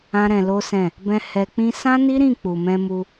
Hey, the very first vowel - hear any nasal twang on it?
yes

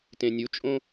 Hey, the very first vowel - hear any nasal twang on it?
yes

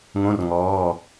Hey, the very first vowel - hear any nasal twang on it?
yes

